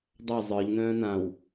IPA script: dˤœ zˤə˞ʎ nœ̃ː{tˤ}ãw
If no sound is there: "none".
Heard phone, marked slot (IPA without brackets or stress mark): n